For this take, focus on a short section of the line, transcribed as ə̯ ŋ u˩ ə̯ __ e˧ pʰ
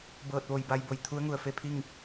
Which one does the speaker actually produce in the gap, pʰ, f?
f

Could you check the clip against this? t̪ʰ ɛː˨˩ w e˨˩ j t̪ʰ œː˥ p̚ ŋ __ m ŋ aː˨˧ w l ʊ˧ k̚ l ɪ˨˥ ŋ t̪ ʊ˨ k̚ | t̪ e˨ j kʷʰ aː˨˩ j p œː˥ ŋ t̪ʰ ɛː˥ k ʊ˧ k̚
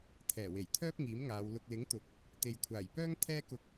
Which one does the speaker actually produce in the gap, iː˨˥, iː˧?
iː˨˥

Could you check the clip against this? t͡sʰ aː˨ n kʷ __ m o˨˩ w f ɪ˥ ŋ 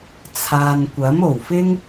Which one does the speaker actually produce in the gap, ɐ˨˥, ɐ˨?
ɐ˨˥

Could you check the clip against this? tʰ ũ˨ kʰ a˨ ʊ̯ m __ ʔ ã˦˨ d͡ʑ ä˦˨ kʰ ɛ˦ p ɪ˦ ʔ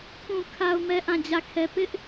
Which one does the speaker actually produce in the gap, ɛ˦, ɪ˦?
ɛ˦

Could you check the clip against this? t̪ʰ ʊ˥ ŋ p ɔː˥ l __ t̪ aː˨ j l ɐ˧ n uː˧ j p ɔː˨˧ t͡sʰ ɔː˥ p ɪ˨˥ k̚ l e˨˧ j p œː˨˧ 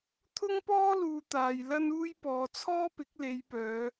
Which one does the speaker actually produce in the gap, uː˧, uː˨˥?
uː˧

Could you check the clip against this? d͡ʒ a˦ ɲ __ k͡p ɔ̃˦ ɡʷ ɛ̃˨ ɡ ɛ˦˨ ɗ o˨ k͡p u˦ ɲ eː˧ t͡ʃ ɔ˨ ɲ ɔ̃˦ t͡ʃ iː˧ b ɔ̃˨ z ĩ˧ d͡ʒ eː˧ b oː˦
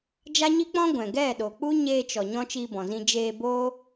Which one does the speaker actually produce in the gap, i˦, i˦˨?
i˦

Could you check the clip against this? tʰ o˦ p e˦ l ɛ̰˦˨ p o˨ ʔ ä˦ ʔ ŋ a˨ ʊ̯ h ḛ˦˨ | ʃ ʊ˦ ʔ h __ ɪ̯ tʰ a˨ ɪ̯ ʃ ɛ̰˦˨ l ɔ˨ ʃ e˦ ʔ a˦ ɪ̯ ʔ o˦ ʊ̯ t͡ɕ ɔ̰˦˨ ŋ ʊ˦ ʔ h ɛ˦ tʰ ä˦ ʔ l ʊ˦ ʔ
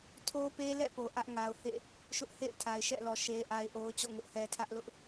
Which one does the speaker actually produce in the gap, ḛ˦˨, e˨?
ḛ˦˨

